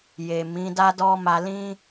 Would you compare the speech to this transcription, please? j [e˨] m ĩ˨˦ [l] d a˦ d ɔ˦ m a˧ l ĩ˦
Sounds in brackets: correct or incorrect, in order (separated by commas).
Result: correct, incorrect